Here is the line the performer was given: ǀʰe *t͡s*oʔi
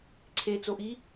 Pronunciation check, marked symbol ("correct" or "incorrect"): correct